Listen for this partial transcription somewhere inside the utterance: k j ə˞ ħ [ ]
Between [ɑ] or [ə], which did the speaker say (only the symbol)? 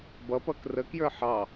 ɑ